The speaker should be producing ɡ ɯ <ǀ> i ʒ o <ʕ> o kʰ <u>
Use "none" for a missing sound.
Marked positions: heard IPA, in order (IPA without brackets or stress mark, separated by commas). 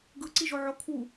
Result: ǀ, ʕ, u